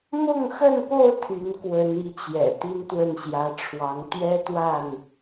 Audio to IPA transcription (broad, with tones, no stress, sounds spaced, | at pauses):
m ʊ˥˨ ŋ x ə˥˨ n p o˥˨ ʊ̯ t̪ʰ y˨˦ n k w ə˨˦ n i˨˦ t͡ɕ j ɛ̰˨˩ t̪ i˦ n t̪ w ə˥˨ n ɕ j ä˨˦ ʈ͡ʂʰ w ɑ˨˦ ŋ t̪ ɥ ɛ˦ t̪ w a˥˨ n